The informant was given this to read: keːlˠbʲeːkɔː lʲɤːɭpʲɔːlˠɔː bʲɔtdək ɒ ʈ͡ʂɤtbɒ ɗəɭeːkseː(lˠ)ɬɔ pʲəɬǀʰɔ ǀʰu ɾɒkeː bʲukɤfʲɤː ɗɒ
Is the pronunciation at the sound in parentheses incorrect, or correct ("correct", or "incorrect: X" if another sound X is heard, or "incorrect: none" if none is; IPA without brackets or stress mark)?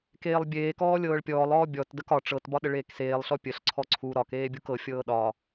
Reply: correct